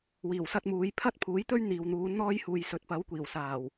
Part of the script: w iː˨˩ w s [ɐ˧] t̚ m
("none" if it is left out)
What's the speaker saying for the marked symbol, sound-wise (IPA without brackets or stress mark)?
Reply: ɐ˧